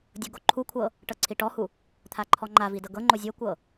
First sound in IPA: dʲ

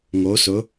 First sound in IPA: ŋ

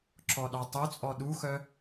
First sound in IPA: ǁ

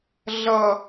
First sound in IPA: ɮ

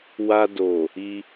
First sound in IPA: w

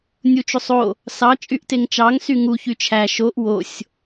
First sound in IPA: nʲ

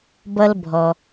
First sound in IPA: b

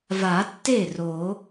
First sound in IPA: v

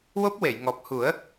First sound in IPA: w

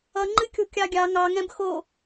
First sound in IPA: ʌ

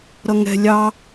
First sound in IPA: ɾ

